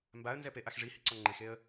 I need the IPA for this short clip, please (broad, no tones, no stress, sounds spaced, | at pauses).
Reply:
m b a ə̯ n z ɛ p e ʔ a x ʐ i h i ǀ ɔ ŋ͡ǃ e x e ə̯